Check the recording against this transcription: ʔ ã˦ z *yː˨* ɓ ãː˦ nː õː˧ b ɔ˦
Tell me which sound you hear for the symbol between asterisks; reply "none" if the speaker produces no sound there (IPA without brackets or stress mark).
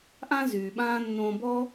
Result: yː˨